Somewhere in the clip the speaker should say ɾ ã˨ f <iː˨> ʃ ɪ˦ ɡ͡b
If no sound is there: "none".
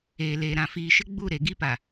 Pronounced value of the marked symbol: iː˨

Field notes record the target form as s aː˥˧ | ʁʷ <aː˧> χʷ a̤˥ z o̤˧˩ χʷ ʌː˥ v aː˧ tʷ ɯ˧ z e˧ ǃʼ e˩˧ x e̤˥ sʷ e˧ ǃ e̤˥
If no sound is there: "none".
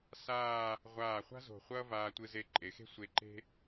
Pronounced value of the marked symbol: aː˧˩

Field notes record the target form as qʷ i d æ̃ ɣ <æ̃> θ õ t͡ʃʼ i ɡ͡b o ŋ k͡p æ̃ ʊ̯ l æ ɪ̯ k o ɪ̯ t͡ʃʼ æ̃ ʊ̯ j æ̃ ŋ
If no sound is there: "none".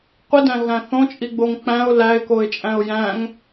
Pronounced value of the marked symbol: æ̃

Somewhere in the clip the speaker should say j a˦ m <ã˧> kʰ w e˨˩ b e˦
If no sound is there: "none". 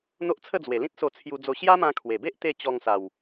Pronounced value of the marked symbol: ã˧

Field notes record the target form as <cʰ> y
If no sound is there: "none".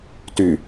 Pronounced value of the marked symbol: t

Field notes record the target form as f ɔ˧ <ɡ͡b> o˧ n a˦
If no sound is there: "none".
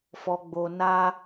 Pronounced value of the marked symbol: ɡ͡b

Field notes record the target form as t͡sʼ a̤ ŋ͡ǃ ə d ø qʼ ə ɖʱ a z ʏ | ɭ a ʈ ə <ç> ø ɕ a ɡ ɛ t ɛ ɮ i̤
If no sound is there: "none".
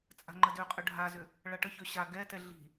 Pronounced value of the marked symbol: ç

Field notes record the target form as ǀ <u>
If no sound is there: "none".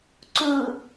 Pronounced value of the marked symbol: u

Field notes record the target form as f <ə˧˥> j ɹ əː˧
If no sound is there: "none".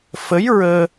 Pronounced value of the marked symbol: ə˧˥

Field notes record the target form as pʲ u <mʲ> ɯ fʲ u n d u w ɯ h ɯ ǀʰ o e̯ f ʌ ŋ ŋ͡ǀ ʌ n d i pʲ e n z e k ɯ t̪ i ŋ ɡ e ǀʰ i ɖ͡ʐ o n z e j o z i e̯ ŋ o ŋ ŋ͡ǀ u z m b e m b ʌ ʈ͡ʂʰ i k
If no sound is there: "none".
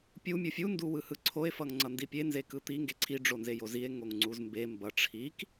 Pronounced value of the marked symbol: mʲ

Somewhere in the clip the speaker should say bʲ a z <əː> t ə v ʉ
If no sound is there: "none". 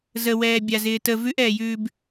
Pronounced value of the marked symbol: ɪː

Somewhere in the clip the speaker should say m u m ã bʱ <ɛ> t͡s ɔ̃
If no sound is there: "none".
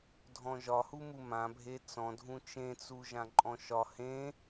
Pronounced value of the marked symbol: e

